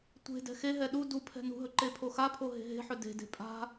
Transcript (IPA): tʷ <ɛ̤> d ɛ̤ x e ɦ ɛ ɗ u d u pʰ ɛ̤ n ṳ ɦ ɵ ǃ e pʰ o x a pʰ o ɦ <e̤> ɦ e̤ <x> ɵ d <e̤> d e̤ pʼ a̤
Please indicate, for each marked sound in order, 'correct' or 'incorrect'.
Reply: incorrect: e̤, correct, incorrect: ħ, correct

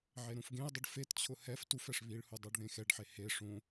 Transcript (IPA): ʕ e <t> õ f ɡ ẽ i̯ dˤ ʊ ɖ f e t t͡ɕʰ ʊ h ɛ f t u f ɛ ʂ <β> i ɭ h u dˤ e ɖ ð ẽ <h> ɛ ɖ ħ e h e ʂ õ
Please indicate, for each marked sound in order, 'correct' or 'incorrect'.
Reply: incorrect: ɾ, correct, incorrect: x

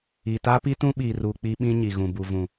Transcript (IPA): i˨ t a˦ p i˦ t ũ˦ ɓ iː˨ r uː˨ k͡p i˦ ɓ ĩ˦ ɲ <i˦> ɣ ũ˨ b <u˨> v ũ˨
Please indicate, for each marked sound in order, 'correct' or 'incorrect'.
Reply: incorrect: i˨, correct

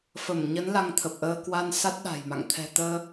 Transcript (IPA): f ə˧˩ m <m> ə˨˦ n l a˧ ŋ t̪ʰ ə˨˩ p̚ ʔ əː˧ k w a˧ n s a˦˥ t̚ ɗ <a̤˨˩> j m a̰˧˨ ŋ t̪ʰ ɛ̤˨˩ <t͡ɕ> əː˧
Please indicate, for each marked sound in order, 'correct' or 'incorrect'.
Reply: incorrect: ɲ, correct, incorrect: t̪

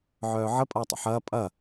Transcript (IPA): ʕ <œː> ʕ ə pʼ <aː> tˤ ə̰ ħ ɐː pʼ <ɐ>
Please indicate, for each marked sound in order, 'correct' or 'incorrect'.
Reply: correct, incorrect: ɐː, correct

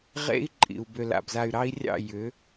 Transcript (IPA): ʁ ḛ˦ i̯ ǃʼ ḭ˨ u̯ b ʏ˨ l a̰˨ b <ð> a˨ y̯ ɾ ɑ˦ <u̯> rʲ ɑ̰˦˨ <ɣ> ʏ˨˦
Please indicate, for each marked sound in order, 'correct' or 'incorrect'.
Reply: incorrect: z, incorrect: i̯, incorrect: j

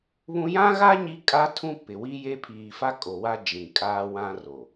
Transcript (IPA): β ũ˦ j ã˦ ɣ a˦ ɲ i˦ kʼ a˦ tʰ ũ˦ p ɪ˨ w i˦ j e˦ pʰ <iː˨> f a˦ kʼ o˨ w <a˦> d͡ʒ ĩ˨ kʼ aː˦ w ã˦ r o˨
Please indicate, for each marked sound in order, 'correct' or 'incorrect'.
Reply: correct, correct

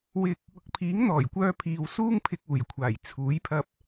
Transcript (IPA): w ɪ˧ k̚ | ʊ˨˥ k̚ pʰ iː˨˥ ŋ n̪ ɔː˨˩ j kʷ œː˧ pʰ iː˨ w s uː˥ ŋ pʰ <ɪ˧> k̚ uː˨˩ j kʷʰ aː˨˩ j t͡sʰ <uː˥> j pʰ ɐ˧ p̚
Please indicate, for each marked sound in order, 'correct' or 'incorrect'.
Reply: correct, incorrect: uː˨˥

